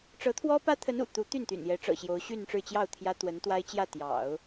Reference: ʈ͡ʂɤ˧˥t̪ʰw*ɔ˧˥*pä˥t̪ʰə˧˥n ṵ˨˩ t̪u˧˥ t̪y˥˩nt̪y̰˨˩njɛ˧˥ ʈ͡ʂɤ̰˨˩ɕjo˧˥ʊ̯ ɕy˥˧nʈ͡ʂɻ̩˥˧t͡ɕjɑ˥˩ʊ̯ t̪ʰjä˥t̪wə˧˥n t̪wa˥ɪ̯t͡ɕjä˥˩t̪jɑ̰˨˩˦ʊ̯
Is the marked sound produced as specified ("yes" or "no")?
no